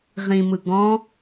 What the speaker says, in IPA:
ʁ ĩ m ɯ ɡ ɔ̃

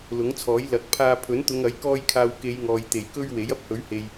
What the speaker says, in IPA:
l ʊ˨˥ ŋ t͡sʰ ɔː˨˥ j l ɐ˨˥ k̚ pʰ aː˧ pʰ ɵ˨˥ n t̪ ʊ˨˧ ŋ ɐ˨˥ j k ɔː˧ j kʰ aː˨ w k e˨˧ j ŋ ɔː˨ j t̪ e˨˩ j k ɵ˥ ɥ w e˨˥ j ɐ˥ p̚ h ɵ˨˥ ɥ h e˨ j

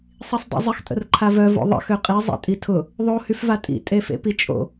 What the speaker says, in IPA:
sˤ i sˤ dˤ ḭ zˤ ɪ x tʼ ə̰ r ǃʰ a v œ v o̰ ðˤ ə̰ x ø qʼ i zˤ ḛ tʼ i tʰ ʊ | ðˤ o h y f v a tʼ ḭ tʼ e f ḛ p i t͡ʃʼ o̰

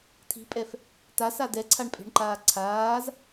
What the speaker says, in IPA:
tʰ i̤ pʼ ɛ f | t a s a d ɛ ǀʰ a ɳ pʼ e̤ ɳ ǃ aː ǀʰ aː z

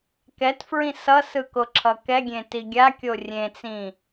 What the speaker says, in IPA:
k ɛ t f ɹ ĩ s ʌ s ɯ k o ǁʰ ʌ k ɛ ɡʲ ẽ t i ɡʲ a kʲ o rʲ ẽ t͡s ĩ

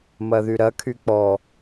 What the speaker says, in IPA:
m ɐ ð y ɾ ɐ kʰ y k͡p ɔ

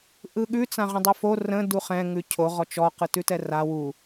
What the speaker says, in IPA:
ʔ ɯ ɠ ʉ t͡s ã ʁ ə̃ dˤ u f o r ə̃ d u χ ɛ̃ ŋ ʉ cʰ o ʁ ɔ t͡ʃ ɔ q ɯ t ʉ t ɛ r a w u

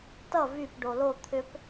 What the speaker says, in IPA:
t ʌ v y p ɖ o l o t̪ʰ ʏ p

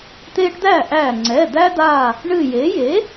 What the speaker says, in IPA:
t̪ eː˦ ʈ d̪ æ˥˩ ʔ æ˧˩ ŋ͡ǀ ɛ˩˧˩ d̪ æ˦ d̪ aː˧˩ | ɳ ɨ˧˩ j e˩˥ j e˩˥

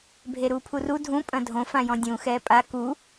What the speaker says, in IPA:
bʱ e ɾ uː pʰ u r u dʱ ũ pʼ ɐ̃ dʱ õ f ã j ɔ̃ dʲ ũ x ɛː pʼ a k u

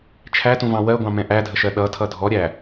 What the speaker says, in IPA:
t͡ʃʰ æ t ũ v ɑ̃ w ɜ ɡʷ ɑ̃ m ɛ̃ ʔ æ dʱ ə ʃ ɜ ɗ ʌ tʰ ʌ dʱ ɔ ɾʲ æ

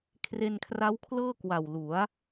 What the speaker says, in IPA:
kʰ r e˧ n kʰ r a˦˥ w kʰ l ɤː˥˩ k w a˨˩ w l u˩˦ a̯

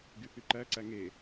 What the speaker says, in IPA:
ɡ y θ y ǃ æ ǀ æ ŋ e

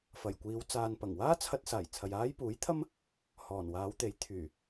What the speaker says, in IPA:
f ɐ˨˩ j kʷ iː˨˧ w t͡s aː˨ n p ɐ˨˩ ŋ w aː˥ t͡sʰ ɐ˧ t̚ s aː˨˩ j t͡sʰ ɐ˨ j aː˥ j p uː˨˥ j t̪ʰ ɐ˥ m | h ɔː˨˩ n w aː˨˧ w t̪ e˨˥ j t̪ʰ yː˨˩

